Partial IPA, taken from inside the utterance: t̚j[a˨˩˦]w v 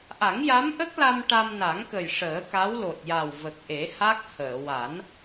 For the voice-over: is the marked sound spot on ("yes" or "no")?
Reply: no